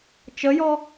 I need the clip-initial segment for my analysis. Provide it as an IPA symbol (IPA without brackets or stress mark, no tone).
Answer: t͡ʃ